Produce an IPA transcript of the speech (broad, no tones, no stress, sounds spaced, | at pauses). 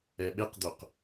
ɛ ɓ e q d̪ o q